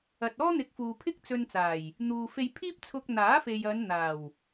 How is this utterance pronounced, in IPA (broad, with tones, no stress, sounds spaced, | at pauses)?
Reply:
ɐ˨ t̚ ɔː˥ n̪ ɪ˨˥ k̚ f uː˨ pʰ ɪ˥ k̚ t͡s ɵ˧ n t͡s aː˨˩ j | n̪ uː˨ f e˧ j pʰ iː˥ p̚ t͡sʰ ʊ˧ k̚ n̪ aː˨˥ f e˨ j ɐ˨˧ n n̪ aː˨˩ w